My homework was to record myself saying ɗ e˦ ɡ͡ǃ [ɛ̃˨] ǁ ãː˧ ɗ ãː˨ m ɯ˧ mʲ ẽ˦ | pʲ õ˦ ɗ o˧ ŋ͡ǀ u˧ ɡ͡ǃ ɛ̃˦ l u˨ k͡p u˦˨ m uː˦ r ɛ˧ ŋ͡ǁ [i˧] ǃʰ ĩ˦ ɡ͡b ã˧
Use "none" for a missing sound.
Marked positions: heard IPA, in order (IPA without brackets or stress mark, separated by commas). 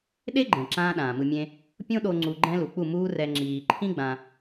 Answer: ɛ̃˨, iː˧